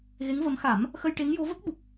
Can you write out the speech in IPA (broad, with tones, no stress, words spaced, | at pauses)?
ɣe˧˥ŋvə˧˥m xa˨˩˦m | xə˧jʈe˧˥ŋjo˧˥ və˦˥k̚ɓu˨˩k̚